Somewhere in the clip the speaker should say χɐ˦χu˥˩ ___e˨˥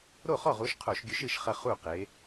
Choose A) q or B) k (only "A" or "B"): A